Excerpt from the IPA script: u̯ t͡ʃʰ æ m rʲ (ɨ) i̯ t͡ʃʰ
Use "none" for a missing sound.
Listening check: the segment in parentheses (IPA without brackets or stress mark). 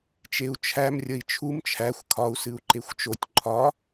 ə